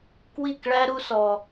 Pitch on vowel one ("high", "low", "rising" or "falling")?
falling